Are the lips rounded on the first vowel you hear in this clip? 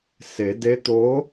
no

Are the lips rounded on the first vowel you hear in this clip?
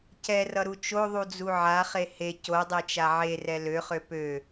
no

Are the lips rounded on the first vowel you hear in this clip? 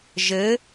no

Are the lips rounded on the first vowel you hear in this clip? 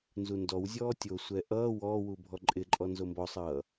yes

